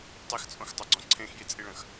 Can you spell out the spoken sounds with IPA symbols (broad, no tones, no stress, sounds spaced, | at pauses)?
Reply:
tˤ i x t͡sʼ õ x tˤ ɐ ɡ͡ǀ ɔ̃ ǀʰ ẽ x j i t͡sʼ i ɭ ɐ̃ x